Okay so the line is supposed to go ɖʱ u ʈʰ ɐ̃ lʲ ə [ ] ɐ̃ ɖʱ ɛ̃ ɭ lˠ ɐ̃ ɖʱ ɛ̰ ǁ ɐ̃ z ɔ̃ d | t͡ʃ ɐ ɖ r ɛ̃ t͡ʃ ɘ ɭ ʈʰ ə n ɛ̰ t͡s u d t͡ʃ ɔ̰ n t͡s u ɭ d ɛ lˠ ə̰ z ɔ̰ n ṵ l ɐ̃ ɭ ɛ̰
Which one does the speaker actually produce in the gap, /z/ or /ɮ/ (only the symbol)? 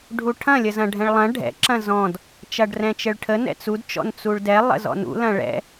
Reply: z